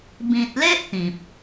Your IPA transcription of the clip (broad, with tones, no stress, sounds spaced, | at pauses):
b ĩ˨ t̚ l e˦ ʔ t̪ ĩ˨ p̚